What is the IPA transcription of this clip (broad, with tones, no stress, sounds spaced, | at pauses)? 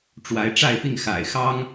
ʈ͡ʂ w a˨˦ ɪ̯ ʈ͡ʂ a˥˨ ɪ̯ p i˥˨ ŋ x a̰˨˩ ɪ̯ x ɑ˦ ŋ